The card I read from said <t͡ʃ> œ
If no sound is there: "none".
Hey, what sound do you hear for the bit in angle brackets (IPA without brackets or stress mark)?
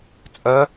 t͡sʼ